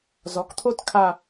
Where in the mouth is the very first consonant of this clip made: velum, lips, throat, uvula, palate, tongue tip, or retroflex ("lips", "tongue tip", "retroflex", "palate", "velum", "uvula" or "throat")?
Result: tongue tip